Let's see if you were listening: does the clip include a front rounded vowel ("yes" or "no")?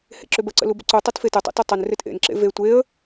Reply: yes